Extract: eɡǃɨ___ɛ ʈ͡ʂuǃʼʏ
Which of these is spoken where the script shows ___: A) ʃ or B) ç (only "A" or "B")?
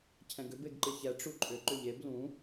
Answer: B